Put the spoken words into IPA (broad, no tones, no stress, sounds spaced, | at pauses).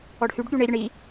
ɔ ɖ h y ɖ ɠ y ɳ e ɾʲ ə ɳ i